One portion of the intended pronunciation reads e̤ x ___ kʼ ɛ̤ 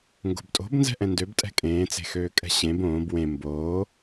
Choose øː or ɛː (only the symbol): øː